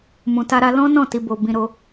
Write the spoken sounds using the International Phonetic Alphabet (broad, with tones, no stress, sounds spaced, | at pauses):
m ũ˨ t a˧ ɾ a˧ l ɔ̃˦ n ɔ̃˦˨ t i˨ b o˨ b ĩ˧ ɾ o˧